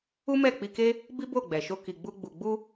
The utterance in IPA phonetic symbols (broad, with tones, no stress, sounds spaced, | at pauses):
u˦ m ɛ˦˨ k͡p i˧ k e˦ | b i˦ b o˦˨ ɡ͡b ɛ˨ ʃ o˧ k i˨ ɡ͡b u˧ ɡ͡b u˨ ɡ͡b u˧